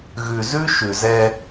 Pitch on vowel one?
low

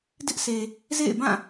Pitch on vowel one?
high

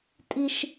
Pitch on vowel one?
high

